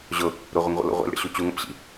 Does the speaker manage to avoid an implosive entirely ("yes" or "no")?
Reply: yes